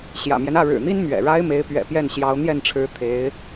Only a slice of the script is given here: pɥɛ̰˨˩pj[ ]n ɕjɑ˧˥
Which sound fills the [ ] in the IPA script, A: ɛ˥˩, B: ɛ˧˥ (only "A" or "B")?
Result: A